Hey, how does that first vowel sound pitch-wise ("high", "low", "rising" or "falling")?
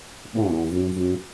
falling